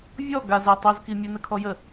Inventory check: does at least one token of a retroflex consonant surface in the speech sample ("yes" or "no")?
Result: no